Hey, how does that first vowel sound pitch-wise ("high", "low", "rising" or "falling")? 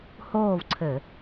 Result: falling